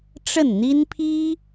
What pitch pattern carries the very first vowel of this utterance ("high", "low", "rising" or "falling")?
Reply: falling